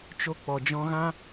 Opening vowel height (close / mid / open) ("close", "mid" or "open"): mid